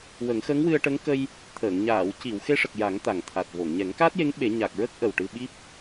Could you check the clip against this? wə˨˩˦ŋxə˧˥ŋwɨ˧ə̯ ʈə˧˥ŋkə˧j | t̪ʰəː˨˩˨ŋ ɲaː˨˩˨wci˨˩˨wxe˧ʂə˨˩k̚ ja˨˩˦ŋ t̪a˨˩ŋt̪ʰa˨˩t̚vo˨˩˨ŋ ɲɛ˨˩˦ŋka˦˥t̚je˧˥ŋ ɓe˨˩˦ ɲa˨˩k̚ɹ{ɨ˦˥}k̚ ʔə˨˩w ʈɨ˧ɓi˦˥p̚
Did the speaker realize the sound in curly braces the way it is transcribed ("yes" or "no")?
no